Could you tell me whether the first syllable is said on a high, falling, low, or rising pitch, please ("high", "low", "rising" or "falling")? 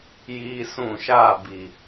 high